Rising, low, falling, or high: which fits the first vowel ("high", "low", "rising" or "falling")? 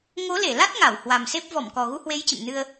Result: rising